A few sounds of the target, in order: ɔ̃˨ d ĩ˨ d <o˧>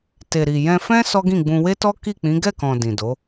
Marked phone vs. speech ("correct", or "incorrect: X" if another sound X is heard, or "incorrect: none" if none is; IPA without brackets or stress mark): incorrect: o˨˦